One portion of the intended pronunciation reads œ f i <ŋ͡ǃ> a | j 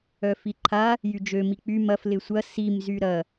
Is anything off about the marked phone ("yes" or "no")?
yes